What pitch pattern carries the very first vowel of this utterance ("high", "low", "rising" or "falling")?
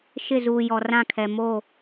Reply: falling